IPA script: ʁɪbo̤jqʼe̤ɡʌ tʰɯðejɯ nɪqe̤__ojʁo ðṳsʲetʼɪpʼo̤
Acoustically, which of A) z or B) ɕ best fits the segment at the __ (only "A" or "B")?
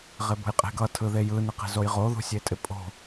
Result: A